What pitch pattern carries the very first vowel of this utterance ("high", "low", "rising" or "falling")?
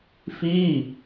falling